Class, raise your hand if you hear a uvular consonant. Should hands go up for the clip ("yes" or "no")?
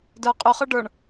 yes